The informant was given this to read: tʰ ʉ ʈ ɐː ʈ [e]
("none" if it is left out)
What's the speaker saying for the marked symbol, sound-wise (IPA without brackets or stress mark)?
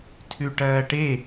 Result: e